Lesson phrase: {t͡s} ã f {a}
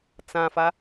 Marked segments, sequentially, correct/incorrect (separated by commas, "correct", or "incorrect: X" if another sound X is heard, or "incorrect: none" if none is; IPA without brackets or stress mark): correct, correct